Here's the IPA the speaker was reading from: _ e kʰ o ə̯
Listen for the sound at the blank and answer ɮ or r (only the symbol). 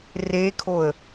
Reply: r